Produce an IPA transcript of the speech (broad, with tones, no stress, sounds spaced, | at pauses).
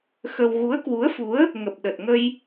x ə˧ w ɣ u˨˦ ə̯ k w u˨˦ ə̯ f u˨˦ ə̯ | ŋ ə˨˩ p̚ ɗ ə˨˩ t̚ ŋ ə˧ j